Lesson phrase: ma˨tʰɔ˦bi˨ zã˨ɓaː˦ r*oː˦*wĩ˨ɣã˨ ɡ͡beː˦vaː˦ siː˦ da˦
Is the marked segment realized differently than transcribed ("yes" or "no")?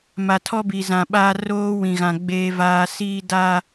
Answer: no